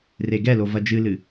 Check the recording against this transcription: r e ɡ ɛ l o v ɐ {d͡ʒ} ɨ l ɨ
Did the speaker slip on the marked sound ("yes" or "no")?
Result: no